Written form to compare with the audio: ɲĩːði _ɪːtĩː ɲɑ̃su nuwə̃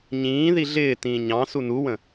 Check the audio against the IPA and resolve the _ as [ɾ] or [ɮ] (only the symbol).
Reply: ɮ